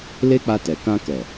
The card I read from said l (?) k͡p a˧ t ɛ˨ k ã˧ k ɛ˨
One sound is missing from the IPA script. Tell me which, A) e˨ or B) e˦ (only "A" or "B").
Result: B